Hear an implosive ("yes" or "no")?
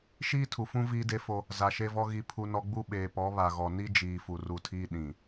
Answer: yes